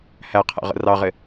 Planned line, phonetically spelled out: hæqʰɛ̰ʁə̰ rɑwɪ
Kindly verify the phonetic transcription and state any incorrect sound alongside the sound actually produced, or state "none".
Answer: w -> ʁ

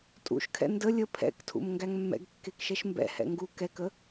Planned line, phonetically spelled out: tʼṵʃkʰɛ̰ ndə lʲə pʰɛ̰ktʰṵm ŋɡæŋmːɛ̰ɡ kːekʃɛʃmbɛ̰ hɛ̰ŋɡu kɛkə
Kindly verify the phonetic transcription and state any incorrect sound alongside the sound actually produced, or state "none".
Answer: none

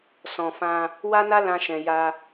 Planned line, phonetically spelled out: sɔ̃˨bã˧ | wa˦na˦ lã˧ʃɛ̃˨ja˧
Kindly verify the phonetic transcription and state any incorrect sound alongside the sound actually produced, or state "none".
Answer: b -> f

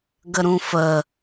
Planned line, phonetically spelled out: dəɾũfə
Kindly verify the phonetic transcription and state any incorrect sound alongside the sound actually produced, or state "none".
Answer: d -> ɡ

